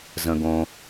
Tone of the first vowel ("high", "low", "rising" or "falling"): low